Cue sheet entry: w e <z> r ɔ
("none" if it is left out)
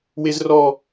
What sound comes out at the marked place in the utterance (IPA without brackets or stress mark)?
z